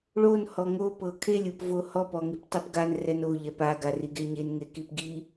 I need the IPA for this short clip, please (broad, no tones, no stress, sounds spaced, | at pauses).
ɭ o n h ɔ ŋ o p ɤ kʰ e lʲ ɯ p v o h ɔ p ɔ ŋ i p tˤ e p ɡ a n r ɛ n o ʎ ɛ p a ɡ a r i ɡ e ɲ e n ŋ e k i p ɡ i